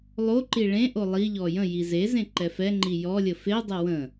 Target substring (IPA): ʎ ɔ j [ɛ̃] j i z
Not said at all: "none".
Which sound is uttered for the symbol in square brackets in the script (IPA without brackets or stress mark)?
ə̃